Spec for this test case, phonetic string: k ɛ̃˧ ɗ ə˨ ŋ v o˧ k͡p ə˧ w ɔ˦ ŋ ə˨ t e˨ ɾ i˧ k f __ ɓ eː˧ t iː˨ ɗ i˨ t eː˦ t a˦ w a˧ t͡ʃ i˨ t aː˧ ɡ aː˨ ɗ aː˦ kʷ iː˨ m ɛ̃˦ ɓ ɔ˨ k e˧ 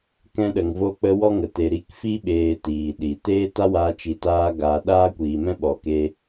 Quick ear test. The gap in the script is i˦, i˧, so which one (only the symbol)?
i˦